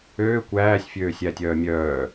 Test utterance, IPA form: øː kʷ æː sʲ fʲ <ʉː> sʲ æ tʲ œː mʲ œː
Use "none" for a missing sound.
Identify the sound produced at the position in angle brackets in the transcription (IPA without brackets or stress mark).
øː